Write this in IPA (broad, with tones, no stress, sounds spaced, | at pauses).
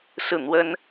s ɹ̩˥˩ n̪ w ə˥ n